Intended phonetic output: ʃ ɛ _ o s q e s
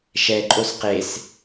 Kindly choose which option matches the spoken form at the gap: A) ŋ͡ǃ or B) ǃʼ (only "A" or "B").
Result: B